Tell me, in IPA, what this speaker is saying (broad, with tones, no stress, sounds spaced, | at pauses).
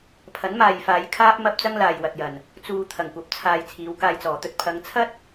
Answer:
pʰ ɐ˨˥ n m aː˨ j f aː˨˧ j kʰ aː˥ p̚ m ɐ˥ p̚ t͡s ɐ˥ ŋ l aː˨ j w ɐ˨ t̚ j ɐ˨˩ n | t͡s uː˨ t̪ʰ ɐ˨˩ ŋ kʷ ɐ˨ p̚ t͡sʰ aː˨ j t͡sʰ iː˨˧ w k aː˧ j t͡s ɔː˨˩ t̪ ɵ˧ t̚ pʰ ɐ˨˧ ŋ t͡sʰ ɐ˥ t̚